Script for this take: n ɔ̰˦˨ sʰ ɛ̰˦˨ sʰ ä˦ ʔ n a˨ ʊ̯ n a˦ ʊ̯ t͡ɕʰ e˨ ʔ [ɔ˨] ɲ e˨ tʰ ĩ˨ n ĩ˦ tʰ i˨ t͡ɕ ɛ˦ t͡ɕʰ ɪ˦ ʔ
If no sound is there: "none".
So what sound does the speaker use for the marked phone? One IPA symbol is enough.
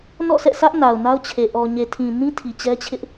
ɔ˨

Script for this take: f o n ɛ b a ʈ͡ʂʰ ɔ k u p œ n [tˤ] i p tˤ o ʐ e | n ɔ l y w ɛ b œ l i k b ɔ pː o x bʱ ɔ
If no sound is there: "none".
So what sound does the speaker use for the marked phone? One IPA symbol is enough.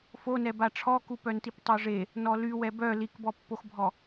t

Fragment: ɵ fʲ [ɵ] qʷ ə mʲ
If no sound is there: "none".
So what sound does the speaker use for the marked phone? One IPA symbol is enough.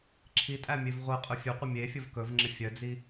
ɵ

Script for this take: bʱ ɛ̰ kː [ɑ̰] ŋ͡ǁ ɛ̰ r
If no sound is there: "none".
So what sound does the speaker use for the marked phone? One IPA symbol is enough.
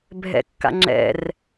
a̰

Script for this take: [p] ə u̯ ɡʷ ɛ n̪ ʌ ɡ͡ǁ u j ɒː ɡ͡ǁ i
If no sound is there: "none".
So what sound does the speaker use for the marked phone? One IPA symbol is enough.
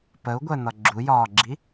p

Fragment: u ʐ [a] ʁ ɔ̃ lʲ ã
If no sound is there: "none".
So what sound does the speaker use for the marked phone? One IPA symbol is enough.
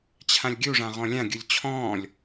ã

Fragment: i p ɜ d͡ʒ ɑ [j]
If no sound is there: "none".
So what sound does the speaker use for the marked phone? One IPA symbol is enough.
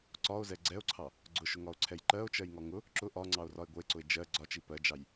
j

